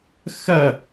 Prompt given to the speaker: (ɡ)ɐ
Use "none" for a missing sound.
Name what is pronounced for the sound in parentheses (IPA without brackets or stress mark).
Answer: x